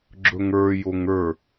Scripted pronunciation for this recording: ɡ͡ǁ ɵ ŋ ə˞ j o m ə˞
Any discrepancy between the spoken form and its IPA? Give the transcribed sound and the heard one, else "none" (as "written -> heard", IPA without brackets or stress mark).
m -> ŋ